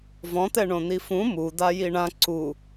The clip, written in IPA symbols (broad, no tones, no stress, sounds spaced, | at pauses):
v ɔ̃ t̪ ɛ ɳ õ n̪ i f ũ m u d̪ a j i ɳ ã ǀ u